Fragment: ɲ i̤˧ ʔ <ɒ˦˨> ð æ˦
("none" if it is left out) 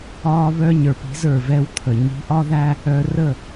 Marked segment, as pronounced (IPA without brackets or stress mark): ɒ˦